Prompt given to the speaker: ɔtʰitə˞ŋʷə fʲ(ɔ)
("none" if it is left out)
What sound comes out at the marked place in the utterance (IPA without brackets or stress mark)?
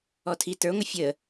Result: ə